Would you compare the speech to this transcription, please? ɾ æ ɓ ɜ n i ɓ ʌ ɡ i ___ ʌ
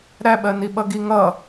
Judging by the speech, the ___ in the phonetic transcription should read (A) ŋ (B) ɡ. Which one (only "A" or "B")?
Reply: A